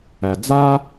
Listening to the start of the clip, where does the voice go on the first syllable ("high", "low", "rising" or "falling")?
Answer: low